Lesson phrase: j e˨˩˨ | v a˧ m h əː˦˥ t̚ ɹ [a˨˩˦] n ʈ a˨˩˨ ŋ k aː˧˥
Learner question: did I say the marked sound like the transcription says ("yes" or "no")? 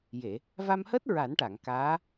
yes